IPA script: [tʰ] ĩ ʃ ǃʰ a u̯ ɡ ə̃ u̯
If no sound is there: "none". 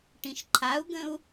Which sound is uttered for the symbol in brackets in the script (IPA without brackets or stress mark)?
ʈ